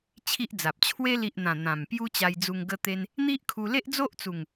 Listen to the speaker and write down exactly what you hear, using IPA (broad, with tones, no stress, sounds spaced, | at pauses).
t͡ɕʰ i˦ ʔ d͡z a˨ p̚ t͡ɕʰ w e˧ l i˨ ʔ n̪ ã˨˩ n̪ ã˨˩ m p j u˦ t͡ɕ a˧ j d͡z u˧ ŋ ɡ ə˦ t̪ e˦ n | n̪ i˦ ʔ kʰ u˧ l e˦ ʔ d͡z o˦ ʔ t͡s u˨˩ ŋ